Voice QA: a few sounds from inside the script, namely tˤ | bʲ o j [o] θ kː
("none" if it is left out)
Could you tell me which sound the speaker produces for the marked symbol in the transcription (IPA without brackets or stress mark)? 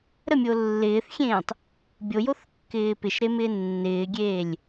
o